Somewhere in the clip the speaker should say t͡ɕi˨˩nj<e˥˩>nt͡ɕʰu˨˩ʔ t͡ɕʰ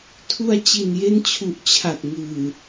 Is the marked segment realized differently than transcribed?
yes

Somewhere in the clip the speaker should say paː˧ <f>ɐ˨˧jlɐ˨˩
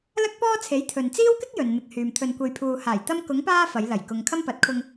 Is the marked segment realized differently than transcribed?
no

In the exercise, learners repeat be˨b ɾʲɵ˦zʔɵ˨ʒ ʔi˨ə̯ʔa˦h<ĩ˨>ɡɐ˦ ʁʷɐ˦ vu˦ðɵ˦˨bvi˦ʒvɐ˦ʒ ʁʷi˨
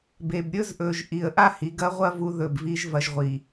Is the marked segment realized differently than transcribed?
yes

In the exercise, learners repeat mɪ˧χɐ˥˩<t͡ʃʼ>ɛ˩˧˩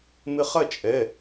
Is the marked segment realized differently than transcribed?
no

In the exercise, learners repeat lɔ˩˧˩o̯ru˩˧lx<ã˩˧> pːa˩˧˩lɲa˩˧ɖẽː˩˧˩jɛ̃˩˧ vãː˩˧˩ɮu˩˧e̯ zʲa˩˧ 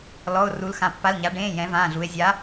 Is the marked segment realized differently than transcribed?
no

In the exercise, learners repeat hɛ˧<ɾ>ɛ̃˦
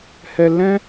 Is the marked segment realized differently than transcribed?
yes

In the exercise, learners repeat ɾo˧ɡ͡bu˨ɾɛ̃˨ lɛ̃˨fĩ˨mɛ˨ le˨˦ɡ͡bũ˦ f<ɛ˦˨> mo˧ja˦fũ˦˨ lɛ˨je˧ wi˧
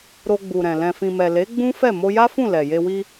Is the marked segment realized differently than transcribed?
no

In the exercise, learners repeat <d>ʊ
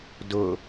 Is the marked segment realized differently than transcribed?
no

